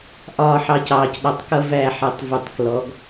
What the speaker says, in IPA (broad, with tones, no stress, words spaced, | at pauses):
ʔɒː˦˨ħɑ˧cɑː˨c ɗɑ˨tˤkʌ˧ væ˦˨ħɛ˨tˤ vu˨tˤklɔ˨˦ɡ